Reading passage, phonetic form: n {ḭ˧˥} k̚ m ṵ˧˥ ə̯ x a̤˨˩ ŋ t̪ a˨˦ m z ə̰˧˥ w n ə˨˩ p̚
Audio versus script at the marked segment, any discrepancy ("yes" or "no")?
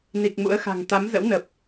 yes